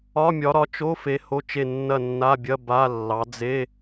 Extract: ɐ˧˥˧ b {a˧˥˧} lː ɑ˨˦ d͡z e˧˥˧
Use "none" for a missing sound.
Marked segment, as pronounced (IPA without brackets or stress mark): a˧˥˧